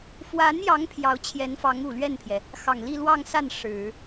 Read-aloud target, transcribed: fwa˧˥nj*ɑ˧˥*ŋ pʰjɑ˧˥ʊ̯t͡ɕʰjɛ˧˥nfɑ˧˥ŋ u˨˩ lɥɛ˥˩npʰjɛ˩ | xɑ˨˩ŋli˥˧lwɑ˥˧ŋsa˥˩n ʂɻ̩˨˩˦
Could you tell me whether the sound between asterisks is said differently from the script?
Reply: no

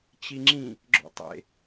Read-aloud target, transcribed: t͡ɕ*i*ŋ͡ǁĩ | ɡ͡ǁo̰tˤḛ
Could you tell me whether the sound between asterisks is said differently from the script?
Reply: no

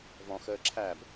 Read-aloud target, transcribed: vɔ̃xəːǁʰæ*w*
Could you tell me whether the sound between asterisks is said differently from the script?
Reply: yes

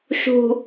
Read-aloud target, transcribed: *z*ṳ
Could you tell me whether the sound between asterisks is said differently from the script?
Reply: yes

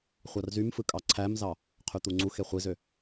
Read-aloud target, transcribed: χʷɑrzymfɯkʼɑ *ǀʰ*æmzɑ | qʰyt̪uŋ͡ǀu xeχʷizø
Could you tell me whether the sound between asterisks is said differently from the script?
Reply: no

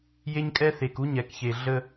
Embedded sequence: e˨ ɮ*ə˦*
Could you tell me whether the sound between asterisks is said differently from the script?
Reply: no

